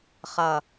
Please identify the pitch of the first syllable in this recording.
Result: low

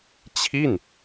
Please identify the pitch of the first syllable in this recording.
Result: falling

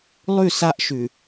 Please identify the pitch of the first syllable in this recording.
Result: falling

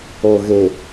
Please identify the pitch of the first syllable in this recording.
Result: low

